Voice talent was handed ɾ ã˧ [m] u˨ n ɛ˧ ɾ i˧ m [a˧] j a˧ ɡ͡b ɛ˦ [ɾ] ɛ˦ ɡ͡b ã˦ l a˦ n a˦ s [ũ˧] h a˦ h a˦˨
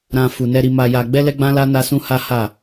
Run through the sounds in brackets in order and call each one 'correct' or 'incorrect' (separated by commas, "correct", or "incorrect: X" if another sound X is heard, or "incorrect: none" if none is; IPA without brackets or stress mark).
incorrect: f, correct, incorrect: l, incorrect: ũ˦